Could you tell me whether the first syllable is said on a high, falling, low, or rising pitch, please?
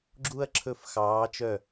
high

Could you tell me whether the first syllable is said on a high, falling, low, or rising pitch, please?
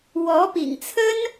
rising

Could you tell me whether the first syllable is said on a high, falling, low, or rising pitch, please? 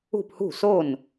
falling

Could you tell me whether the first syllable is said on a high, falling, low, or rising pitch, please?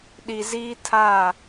low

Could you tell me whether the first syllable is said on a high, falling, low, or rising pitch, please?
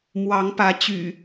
rising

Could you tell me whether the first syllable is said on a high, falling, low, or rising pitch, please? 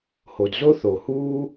low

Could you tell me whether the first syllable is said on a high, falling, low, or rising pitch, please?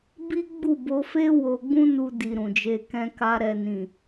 high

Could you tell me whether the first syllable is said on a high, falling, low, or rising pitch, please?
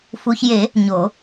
low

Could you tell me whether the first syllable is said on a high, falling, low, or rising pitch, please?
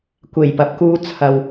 low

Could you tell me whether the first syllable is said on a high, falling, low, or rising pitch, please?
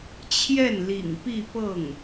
falling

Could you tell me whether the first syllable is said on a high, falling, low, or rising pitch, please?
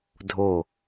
falling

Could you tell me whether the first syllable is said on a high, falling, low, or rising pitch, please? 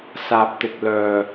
low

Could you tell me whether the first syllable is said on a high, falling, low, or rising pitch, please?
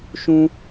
high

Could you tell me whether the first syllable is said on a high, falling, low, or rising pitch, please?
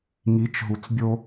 rising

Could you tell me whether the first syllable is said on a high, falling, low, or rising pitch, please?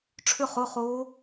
falling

